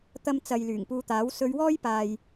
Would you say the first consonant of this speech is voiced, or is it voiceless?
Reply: voiceless